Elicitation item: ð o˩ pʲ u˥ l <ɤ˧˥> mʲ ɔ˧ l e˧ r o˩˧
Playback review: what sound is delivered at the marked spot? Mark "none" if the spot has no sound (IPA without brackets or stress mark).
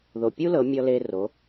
ɤ˩˧